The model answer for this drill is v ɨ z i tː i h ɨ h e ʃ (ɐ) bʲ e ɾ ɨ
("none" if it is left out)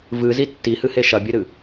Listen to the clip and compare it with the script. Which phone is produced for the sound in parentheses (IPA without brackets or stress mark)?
ɐ